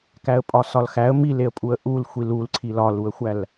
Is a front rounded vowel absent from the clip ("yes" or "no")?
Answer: yes